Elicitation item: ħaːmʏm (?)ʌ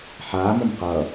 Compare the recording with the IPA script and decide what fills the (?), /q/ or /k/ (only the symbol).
q